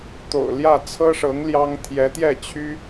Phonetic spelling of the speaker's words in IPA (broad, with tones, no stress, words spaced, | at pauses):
t̪o̰˨˩ʊ̯ljä˥˩t͡sʰɤ˥ʂɤ˧˥ŋ ljɑ˥ŋ t̪ʰjɛ˧˥t̪jɛ˥˩t͡ɕʰy˥